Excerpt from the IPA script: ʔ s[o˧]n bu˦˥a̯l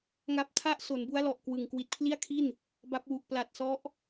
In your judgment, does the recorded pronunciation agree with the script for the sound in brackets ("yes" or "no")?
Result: no